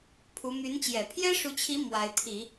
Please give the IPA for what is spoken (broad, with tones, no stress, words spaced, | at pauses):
pʰu˧˥ my˧˥nt͡ɕjɛ˨˩ pʰjɛ˥ʂu˧˥t͡ɕʰi˧˥ mwa˧˥ɪ̯t̪ʰi˨˩˦